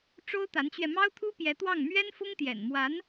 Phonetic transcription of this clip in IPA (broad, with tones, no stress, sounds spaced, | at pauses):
ʈ͡ʂ o˥ ʊ̯ t̪ a˧˥ n t͡ɕ ɥ ɛ˧ m ɑ˥ ʊ̯ t̪ʰ u˥ p j ɛ˧˥ t̪ w ɑ˥˩ ŋ m ɥ ɛ˥ n f ʊ˥ ŋ t̪ j ɛ̰˨˩ n m w a˧˥ n